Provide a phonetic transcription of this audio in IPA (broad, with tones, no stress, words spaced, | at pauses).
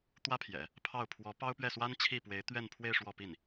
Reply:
t̪wä˥pʰjɛ̰˨˩˦ | pʰɑ˥˩ʊ̯ pʰwɔ˧˥pɑ˥ʊ̯pɥɛ˥˩swa˥n t͡ɕʰi˥˩pwe˧˥ɪ̯t̪ɥɛ˥˧npʰwe˥˧ɪ̯ ʂwɔ˥˧pi˥˩n